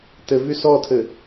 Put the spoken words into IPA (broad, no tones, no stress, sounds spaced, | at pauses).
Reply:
t ɘ v y s ɔ tʰ ɘ